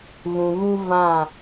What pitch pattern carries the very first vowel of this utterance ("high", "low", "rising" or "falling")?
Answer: low